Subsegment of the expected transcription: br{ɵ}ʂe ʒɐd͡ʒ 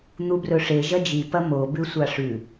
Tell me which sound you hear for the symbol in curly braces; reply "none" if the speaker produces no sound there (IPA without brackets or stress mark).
ɵ